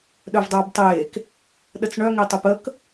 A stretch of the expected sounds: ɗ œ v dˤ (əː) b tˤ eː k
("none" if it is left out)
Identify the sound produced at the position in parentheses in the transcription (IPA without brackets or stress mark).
əː